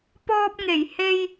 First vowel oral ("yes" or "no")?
yes